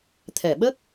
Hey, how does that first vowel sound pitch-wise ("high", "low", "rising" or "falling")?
low